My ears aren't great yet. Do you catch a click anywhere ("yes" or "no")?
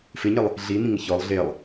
no